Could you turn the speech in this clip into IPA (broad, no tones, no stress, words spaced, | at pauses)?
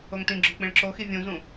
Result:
oŋtĩɡ͡ǁo k͡pĩɭǁoxi vʲũzũ